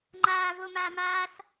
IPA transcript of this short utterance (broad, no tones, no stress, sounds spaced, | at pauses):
ŋ͡ǃ aː v o m aː m aː s